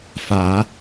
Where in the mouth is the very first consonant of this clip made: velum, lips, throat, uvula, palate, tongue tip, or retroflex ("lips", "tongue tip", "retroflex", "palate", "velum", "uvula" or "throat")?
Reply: lips